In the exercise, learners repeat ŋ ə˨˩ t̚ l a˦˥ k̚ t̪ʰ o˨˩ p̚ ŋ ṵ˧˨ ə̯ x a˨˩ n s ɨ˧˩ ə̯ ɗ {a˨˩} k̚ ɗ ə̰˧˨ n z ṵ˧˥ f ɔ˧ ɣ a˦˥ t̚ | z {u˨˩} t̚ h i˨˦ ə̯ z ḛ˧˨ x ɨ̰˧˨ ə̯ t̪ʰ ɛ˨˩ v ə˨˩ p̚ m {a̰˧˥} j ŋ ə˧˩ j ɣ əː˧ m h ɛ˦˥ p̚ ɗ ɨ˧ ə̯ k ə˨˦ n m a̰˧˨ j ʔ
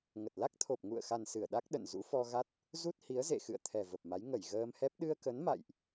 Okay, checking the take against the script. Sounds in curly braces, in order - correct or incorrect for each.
incorrect: a˦˥, incorrect: u˦˥, incorrect: a˨˦

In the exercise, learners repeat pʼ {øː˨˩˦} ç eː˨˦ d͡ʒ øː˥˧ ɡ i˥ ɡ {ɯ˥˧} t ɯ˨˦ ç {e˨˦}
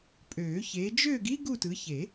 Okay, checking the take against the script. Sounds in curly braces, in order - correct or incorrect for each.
correct, incorrect: u˥˧, incorrect: e˨˩˦

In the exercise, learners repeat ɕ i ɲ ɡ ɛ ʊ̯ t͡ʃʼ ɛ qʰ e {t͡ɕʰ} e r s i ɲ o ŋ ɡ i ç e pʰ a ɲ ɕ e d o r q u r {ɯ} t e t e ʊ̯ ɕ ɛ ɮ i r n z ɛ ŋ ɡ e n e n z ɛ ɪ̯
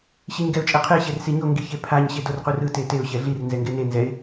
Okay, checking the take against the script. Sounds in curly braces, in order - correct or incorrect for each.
incorrect: ɕ, correct

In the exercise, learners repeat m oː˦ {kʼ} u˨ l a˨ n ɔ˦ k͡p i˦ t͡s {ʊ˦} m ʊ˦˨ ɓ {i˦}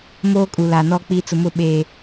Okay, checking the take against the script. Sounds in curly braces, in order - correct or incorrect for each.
correct, incorrect: ʊ˨, incorrect: e˦

